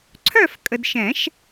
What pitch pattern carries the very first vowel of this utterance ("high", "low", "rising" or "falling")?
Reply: falling